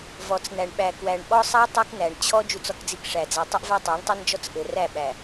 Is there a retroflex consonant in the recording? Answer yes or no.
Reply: yes